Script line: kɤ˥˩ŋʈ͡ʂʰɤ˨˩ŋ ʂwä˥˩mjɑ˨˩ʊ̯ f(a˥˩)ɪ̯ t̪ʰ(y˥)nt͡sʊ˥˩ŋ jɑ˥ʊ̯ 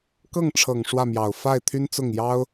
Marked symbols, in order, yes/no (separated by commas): yes, yes